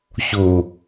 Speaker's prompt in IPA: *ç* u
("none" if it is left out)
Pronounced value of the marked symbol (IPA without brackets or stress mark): ç